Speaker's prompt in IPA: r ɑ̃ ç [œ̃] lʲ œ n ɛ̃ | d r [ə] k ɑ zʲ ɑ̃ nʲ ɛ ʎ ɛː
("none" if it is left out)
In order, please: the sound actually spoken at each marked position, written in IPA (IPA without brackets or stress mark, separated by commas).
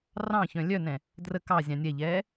œ̃, ə